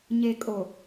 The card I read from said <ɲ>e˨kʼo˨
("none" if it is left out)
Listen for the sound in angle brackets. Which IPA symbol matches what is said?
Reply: ɲ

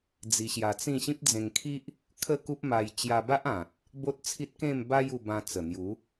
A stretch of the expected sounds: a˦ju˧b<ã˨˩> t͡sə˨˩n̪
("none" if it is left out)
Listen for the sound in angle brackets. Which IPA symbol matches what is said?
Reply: ã˧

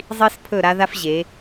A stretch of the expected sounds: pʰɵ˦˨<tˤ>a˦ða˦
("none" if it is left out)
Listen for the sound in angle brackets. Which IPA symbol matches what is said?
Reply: ɾ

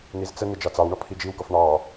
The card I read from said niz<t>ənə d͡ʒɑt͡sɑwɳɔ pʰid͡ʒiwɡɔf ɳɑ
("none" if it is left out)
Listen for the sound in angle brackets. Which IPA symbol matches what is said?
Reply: t͡s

